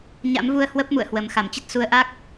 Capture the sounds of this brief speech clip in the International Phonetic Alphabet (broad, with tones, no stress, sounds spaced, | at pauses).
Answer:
ɲ a̰˧˥ m v u˧ ə̯ h w ə˦˥ p̚ m ṵ˧˨ ə̯ h w ə˨˩ m x a˧˩ m t͡ɕ ə˦˥ t̚ s u˨˦ ə̯ ʔ a˦˥ k̚